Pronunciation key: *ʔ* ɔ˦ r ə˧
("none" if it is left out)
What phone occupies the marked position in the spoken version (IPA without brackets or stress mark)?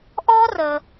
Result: ʔ